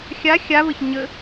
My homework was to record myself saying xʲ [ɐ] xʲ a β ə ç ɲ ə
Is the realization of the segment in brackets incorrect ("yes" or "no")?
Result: yes